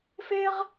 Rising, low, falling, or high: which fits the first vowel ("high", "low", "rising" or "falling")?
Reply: high